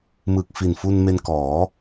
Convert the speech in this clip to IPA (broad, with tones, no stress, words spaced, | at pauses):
mɯ˨˩k̚fi˨˩nfu˧n me˧nkɔː˩˦